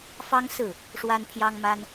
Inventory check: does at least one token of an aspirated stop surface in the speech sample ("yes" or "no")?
yes